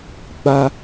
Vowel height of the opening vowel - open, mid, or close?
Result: open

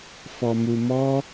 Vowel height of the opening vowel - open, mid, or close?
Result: mid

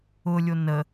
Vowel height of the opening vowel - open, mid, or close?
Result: close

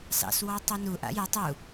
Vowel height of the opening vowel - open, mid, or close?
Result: open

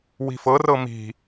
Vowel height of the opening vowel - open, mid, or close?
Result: close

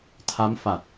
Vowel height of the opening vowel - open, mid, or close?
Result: open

